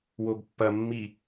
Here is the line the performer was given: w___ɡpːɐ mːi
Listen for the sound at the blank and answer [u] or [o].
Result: o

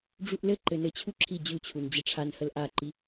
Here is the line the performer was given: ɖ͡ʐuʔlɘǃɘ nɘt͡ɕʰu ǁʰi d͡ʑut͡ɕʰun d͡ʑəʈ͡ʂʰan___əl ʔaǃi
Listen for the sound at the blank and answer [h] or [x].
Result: h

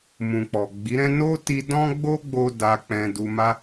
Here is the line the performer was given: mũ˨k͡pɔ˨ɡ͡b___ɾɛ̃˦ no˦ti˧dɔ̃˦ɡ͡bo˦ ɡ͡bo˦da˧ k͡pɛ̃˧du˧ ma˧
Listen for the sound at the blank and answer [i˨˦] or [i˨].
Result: i˨˦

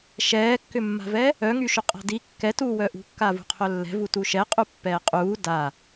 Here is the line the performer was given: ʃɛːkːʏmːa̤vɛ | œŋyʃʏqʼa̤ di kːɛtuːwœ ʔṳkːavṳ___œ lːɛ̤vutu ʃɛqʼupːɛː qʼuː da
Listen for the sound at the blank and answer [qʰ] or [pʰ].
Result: qʰ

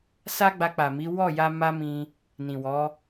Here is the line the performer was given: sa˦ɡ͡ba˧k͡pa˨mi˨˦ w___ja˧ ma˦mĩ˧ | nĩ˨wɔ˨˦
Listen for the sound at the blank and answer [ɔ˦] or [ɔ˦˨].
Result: ɔ˦˨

